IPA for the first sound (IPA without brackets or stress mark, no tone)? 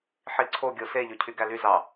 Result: ħ